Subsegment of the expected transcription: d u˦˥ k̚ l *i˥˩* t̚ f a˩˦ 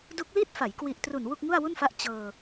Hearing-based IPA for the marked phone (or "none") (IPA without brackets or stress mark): i˥˩